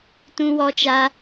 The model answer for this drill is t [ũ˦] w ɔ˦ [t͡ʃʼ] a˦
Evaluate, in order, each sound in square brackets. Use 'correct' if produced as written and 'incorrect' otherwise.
correct, incorrect: t͡ʃ

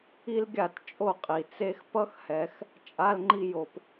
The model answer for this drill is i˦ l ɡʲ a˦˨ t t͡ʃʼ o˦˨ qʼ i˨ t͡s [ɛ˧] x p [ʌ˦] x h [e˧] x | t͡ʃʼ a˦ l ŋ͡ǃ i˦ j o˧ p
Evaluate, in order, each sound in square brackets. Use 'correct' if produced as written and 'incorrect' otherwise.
incorrect: e˧, correct, incorrect: ɛ˧

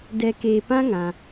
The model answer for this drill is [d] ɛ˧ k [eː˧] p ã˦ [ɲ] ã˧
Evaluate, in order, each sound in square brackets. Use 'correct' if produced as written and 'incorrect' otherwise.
correct, correct, incorrect: ŋ

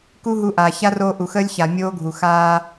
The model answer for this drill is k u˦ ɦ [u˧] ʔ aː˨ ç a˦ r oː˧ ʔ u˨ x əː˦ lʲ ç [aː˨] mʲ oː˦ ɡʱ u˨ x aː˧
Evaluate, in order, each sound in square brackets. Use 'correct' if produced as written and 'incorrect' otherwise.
correct, incorrect: a˨

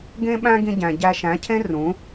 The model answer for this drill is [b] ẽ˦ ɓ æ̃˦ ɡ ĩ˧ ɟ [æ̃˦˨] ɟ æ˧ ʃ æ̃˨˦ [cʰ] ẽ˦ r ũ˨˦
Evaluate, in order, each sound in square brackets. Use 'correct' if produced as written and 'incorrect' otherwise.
incorrect: ɡ, incorrect: æ̃˨, correct

